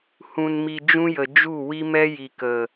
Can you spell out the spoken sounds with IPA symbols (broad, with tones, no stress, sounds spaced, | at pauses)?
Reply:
h ũ˨ n m i˨ d͡ʒ ũ˦ j ə˨ d͡ʒ u˦˨ w i˦ m ɛ˦ j i˨ k ə˨